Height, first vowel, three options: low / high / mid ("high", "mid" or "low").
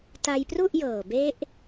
low